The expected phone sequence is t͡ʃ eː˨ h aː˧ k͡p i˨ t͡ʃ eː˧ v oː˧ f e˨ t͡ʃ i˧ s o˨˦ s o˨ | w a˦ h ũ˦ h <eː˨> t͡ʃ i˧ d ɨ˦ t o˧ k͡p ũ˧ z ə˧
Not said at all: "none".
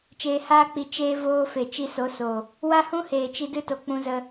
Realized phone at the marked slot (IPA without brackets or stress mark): eː˨